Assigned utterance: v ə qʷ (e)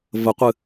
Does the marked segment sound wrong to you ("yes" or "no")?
yes